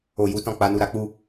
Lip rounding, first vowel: rounded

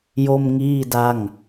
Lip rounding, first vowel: rounded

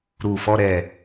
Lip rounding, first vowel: rounded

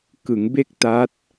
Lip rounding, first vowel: unrounded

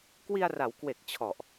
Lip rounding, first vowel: unrounded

